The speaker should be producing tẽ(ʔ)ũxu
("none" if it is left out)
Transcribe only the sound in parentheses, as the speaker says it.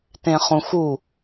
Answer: χ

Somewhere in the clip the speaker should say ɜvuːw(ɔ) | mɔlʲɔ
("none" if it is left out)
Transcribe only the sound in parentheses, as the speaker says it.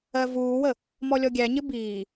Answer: ə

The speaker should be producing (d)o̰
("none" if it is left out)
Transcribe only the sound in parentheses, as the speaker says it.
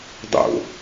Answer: dˤ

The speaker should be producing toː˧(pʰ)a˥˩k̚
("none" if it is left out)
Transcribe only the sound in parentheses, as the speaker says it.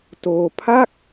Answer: pʰ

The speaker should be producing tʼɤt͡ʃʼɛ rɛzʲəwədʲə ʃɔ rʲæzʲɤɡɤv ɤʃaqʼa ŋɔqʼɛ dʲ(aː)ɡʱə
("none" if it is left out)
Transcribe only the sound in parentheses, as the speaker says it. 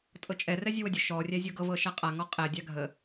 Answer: a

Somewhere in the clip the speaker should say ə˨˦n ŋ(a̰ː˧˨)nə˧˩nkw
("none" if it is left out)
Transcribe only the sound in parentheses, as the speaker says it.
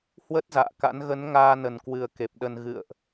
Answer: aː˧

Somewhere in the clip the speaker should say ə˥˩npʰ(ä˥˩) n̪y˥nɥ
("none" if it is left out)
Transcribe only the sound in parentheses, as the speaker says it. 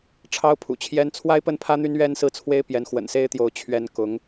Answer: ä˥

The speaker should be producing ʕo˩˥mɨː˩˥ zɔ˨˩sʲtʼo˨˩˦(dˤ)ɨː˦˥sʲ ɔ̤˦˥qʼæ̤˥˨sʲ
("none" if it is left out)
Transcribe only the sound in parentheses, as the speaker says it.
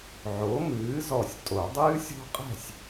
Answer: dˤ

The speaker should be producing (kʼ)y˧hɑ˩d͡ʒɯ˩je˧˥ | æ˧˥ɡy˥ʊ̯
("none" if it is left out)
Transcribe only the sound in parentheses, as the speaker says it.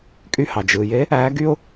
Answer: kʼ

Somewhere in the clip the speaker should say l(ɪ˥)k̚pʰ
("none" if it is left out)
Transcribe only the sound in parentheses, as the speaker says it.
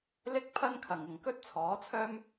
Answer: ɪ˥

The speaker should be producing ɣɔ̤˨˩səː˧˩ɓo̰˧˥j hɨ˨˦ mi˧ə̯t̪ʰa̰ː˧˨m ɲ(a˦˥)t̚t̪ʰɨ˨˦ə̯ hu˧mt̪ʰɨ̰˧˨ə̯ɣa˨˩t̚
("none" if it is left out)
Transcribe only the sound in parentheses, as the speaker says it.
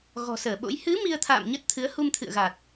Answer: ə˦˥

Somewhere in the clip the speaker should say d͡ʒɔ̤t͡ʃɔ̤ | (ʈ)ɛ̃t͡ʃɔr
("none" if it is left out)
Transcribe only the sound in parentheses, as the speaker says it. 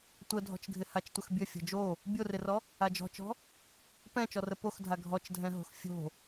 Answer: p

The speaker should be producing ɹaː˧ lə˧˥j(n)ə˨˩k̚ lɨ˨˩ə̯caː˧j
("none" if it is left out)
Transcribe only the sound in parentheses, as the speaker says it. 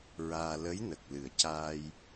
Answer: n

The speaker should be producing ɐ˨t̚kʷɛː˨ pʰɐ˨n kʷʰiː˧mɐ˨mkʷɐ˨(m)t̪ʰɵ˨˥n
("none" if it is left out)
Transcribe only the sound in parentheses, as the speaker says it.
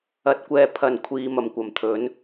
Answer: m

